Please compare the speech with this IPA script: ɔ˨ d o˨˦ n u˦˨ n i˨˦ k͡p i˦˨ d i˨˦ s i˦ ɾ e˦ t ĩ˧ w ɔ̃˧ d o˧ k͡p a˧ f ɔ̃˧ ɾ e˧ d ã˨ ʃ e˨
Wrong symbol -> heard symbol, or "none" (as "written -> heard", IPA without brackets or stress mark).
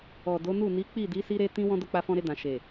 none